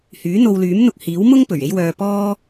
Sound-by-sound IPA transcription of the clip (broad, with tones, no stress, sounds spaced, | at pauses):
h yː˨˥ n̪ o˧ w l yː˨˥ m n̪ ʊ˧ k̚ h iː˨˥ w m ʊ˥ ŋ p ɵ˨˩ ɥ e˥ j w œː˧ p ɔː˥